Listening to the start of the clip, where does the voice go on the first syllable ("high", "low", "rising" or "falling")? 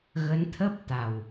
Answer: rising